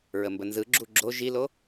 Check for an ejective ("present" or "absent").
absent